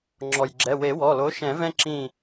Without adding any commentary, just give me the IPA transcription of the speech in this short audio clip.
ŋ͡ǁɔ˩jɡ͡ǁɛ˩˧˩ we˨˩˦wɔ˩˧˩lo˨˥ ʃɛ̃˨˩˦vɛ̃˦ǁĩ˧˩

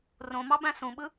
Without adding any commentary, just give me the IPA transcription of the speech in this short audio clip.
rõmɑbæ̃ sũɓɯ

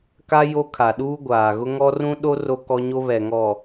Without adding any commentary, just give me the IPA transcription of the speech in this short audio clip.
ka˦ jo˦ kʰa˨ɗuː˦ ɡʷaː˨ɣʊ˦ŋɔ˦ rũ˦ɗo˦ ro˦kɔ˦ɲo˦ βɛ˨ŋɔ˨

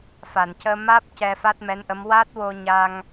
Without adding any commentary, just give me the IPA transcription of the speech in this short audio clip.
fa˨˩˨ncəː˧maː˦˥p̚ cɛ˧fa˦˥t̚mɛ˧˥nʔə˧˥m wa˦˥t̚wo˧ɲa˧ŋ

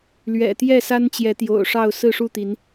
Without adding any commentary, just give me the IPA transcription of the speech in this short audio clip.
lɥɛ̰˨˩ t̪jɛ˥˨sa˦nt͡ɕjɛ˨˦ t̪jo̰˨˩ʊ̯ʂɑ˥˨ʊ̯ sɹ̩˥˨ʂu˥˨t̪i˨˦n

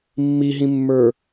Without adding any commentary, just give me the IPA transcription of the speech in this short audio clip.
mːiɦĩmːə˞

